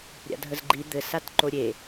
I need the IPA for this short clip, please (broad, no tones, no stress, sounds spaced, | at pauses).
ɾʲ a̰ dʱ ə z ɡ͡ǃ i d̪ ɘ s a t ǃ o ɾʲ e